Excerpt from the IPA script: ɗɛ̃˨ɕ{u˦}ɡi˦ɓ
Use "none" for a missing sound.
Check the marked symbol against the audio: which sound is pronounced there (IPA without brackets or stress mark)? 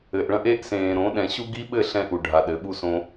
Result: u˦